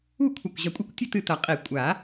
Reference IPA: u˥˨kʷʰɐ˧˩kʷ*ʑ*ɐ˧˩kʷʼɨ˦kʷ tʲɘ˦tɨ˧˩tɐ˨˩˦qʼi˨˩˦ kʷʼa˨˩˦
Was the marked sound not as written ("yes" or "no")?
no